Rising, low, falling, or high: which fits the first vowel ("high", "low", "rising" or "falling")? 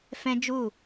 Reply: high